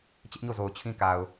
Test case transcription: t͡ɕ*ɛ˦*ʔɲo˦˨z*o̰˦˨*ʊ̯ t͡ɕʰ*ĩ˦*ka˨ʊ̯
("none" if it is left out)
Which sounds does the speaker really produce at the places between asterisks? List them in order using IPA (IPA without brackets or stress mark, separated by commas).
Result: ɪ˦, o˨, ĩ˦